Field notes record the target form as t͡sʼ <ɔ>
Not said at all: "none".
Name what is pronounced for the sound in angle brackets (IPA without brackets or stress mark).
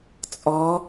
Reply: ɔ